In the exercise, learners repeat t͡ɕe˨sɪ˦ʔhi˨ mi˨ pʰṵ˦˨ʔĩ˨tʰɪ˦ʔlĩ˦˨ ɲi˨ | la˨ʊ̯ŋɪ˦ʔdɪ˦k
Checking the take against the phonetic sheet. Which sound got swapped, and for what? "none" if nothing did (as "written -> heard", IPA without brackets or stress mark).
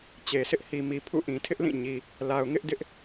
k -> ʔ